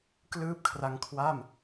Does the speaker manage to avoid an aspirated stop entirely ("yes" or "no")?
no